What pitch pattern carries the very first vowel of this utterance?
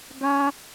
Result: high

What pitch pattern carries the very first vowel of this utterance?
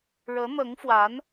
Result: rising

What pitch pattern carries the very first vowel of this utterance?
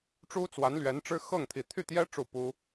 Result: high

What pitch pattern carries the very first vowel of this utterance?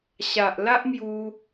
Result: low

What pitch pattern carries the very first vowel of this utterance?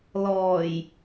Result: low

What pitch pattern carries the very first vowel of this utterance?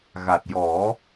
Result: low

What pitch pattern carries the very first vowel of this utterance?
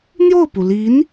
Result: falling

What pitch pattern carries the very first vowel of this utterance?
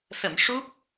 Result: low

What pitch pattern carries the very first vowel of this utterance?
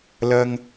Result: low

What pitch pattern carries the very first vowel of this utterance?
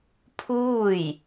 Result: falling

